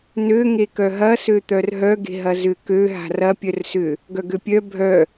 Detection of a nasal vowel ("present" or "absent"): absent